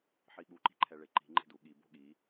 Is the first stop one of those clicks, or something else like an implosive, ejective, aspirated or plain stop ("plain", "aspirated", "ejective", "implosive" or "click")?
implosive